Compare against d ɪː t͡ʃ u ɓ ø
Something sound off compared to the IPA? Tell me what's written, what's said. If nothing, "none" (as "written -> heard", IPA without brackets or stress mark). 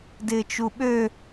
none